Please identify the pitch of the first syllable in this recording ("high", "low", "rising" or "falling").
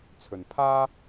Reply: low